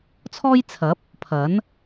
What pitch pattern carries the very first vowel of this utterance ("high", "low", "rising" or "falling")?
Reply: high